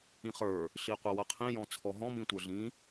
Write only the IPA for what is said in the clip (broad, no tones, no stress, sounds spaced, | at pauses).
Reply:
ĩ χ ə˞ | ɬ i qʷ ʌ w ʌ qʰ ĩ j ɔ̃ t͡sʰ ɔ ɦ ɔ̃ m ĩ tʷ ə˞ ɮ ĩ